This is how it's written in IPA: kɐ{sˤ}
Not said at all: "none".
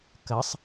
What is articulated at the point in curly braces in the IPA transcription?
sˤ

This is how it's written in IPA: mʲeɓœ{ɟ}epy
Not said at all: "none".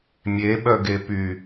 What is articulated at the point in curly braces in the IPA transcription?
ɡ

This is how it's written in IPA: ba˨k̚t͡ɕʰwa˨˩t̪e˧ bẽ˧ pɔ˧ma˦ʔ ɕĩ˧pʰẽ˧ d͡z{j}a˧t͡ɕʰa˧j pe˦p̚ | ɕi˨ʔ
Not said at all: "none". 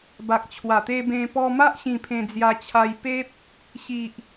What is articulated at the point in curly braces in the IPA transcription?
j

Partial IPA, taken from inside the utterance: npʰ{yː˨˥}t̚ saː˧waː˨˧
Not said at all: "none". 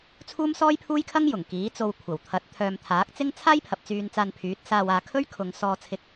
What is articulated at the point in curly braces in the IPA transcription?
yː˨˥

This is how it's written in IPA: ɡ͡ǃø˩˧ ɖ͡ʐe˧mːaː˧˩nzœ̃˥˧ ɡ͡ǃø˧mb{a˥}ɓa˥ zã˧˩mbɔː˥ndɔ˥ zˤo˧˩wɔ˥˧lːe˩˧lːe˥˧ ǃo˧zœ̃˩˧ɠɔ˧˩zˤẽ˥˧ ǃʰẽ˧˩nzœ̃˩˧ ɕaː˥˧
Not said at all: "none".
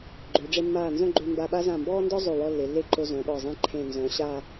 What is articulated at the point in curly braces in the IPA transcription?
a˧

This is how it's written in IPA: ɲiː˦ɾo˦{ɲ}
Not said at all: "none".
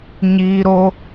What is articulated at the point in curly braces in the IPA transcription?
none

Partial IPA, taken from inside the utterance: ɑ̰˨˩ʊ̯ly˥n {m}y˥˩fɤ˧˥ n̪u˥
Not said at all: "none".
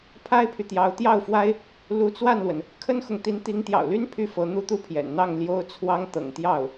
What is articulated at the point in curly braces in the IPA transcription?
pʰ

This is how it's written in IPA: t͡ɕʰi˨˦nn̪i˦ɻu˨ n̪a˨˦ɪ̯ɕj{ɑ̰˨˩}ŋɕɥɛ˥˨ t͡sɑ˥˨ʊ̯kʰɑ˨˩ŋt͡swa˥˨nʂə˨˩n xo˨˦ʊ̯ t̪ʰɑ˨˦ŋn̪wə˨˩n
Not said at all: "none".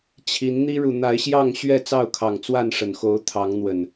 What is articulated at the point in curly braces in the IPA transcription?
ɑ˥˨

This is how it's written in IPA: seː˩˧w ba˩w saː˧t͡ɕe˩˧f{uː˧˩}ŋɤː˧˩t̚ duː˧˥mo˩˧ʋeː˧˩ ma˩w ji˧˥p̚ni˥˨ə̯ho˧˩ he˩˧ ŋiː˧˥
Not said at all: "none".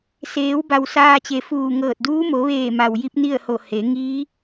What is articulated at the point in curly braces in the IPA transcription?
uː˧˩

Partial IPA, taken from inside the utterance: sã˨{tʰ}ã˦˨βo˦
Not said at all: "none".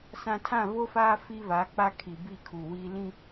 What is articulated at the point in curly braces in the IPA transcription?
tʰ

